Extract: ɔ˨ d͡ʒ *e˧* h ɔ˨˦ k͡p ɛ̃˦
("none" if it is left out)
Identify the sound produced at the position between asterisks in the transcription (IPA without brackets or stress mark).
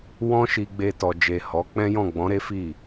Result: e˨